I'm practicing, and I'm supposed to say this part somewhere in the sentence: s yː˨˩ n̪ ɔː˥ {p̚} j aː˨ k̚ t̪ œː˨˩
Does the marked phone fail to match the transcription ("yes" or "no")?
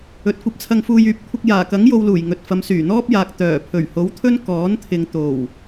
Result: no